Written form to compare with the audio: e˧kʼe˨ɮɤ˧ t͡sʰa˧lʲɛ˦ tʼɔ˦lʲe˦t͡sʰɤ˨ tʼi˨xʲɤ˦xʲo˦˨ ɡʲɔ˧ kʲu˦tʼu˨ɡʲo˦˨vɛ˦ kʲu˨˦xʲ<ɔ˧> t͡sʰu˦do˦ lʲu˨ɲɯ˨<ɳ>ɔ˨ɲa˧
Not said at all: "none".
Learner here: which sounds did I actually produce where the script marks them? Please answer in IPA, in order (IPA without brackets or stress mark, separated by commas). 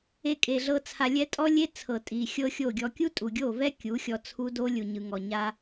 ɔ˧, ŋ